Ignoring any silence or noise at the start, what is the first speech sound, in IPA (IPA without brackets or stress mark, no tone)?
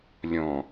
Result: lʲ